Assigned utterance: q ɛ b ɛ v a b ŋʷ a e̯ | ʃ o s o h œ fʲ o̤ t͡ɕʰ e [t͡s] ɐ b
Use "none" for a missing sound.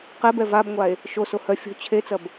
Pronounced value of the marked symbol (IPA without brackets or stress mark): t͡s